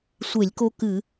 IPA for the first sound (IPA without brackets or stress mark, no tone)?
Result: sʷ